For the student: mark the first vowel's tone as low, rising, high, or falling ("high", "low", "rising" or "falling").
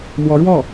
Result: rising